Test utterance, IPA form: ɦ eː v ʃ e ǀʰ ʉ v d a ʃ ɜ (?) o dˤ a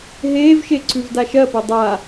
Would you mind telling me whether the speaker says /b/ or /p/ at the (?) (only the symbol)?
p